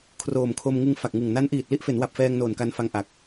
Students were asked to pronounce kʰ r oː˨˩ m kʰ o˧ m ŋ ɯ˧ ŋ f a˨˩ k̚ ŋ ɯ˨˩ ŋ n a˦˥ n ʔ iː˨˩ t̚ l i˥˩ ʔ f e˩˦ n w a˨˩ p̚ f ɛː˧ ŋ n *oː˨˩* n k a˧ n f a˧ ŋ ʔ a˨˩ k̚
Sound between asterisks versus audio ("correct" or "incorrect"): correct